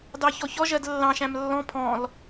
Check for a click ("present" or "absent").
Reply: absent